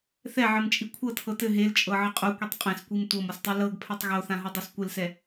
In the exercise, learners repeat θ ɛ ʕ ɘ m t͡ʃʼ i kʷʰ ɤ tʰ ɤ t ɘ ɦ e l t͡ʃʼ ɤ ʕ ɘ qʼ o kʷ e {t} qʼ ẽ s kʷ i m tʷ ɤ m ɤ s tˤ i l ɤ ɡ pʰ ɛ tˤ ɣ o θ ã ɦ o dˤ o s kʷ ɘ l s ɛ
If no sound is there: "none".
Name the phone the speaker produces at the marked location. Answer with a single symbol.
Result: tˤ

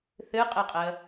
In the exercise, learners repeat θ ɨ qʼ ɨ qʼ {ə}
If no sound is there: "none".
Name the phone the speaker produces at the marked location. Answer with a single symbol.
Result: ə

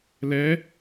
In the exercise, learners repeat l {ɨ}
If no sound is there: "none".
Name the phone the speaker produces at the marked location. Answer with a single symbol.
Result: ɛ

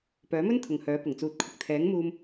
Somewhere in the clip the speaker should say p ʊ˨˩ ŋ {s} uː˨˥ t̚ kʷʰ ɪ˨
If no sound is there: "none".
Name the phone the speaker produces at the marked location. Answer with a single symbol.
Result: t͡s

